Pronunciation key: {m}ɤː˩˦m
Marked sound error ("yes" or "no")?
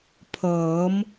yes